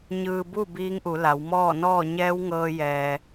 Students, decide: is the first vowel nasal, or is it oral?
oral